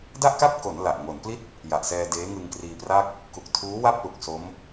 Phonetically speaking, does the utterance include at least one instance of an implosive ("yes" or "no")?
no